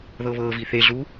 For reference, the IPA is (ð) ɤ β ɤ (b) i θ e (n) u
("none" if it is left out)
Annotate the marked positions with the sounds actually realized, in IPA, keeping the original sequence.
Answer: ð, v, ɮ

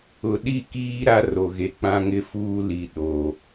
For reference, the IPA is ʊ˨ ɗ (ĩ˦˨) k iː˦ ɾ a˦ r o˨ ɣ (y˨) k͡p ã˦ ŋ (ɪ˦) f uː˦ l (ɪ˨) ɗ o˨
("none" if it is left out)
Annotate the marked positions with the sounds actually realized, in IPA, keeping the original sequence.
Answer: i˦˨, e˨, ɪ˦, i˨

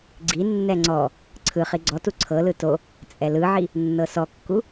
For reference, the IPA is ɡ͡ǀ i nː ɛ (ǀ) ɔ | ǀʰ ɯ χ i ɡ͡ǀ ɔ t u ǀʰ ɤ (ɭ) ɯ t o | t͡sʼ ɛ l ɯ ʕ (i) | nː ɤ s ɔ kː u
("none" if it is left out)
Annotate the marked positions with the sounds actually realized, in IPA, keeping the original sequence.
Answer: ŋ͡ǀ, l, i

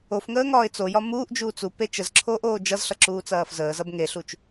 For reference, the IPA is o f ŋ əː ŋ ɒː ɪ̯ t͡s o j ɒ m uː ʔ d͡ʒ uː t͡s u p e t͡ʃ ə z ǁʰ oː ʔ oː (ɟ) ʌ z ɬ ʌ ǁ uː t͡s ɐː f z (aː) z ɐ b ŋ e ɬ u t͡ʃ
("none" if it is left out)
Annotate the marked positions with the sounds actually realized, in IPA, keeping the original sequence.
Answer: d͡ʒ, əː

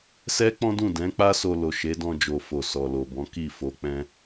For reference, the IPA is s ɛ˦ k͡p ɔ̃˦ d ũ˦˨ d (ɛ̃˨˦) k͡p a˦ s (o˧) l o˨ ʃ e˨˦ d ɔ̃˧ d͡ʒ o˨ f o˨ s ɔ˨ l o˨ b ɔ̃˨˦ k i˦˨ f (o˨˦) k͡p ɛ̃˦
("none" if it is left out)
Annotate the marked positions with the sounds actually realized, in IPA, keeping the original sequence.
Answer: ɛ̃˨˦, o˧, o˨˦

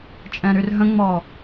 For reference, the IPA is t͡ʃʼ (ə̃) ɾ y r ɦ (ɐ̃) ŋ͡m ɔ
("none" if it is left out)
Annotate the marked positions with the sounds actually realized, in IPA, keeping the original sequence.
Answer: ɛ̃, ə̃

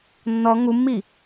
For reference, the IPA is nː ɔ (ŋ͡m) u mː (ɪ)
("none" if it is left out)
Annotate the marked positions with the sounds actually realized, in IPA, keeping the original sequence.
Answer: ŋ, i

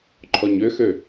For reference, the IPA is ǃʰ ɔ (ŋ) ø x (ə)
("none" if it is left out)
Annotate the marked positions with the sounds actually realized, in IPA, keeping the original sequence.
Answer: ɲ, ø

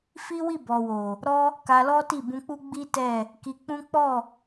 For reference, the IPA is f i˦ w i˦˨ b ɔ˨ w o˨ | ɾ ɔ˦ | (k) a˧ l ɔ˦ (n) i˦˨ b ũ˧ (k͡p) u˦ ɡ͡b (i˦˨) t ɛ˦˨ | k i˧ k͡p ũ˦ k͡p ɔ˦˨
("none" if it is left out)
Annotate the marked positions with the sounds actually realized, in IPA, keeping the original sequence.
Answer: k, t, k͡p, i˦

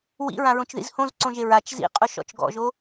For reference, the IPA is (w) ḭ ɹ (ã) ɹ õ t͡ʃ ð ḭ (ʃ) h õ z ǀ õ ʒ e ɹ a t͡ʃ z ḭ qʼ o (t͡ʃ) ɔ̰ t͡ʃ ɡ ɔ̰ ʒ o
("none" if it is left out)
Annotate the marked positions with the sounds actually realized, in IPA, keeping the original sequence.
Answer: w, ã, z, ʃ

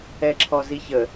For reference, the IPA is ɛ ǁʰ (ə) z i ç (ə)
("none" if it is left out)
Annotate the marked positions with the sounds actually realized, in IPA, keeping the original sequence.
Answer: ɔ, ə

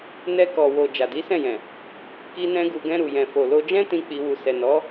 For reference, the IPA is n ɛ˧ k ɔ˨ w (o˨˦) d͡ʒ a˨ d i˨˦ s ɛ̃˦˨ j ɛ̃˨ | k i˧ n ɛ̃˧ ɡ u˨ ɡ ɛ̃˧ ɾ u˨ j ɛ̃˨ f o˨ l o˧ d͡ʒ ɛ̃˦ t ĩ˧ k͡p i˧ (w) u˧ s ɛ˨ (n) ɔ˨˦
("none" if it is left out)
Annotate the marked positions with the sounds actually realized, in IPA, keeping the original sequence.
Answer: o˨, w, n

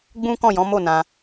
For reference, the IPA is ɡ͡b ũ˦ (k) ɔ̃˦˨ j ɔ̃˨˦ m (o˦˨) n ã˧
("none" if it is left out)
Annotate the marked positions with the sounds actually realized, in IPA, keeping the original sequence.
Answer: k, o˦˨

